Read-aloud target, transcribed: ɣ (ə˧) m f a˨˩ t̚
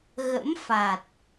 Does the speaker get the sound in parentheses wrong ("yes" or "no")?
yes